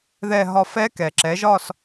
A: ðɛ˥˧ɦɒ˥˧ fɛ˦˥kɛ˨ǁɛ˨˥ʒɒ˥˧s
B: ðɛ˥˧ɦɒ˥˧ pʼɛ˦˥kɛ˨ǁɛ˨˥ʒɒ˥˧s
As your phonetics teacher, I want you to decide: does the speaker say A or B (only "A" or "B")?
A